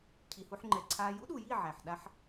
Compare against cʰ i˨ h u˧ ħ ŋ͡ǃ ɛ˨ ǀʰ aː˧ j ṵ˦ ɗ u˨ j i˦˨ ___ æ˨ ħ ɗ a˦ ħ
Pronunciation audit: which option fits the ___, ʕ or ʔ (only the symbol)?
ʕ